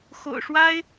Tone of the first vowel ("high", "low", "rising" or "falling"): low